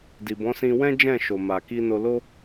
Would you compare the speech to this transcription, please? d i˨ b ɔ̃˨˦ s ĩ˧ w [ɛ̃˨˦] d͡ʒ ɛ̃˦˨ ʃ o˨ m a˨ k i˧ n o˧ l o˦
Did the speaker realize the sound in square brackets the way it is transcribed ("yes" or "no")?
no